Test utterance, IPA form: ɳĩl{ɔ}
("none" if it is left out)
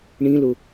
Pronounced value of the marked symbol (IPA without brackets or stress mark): ʊ